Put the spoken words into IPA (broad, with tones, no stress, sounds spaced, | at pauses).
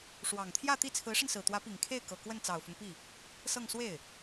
ʂ w ɑ˨˩ ŋ t̪ʰ j ä˥˧ t̪ i˥˩ t͡sʰ ɹ̩˧˥ ʂ ə˧ n s ɹ̩˨˩ t̪ w ä˧˥ p i˨˩ ŋ kʰ e˥˩ ɪ̯ k ɤ˨˩ k w ə˥˩ n t͡s ɑ˨˩ ʊ̯ f ʊ˦ ŋ p i˥˩ | s ɤ˥˧ ŋ s w e˥˩ ɪ̯